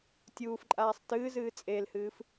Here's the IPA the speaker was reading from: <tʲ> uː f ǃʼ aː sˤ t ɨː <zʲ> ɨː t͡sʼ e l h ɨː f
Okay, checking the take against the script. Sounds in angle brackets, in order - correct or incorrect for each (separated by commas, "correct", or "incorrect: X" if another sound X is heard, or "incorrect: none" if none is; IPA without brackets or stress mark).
correct, incorrect: z